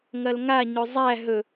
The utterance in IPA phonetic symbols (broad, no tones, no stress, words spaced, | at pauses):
ŋɐlŋa ɲɵzˤæ ɦɵ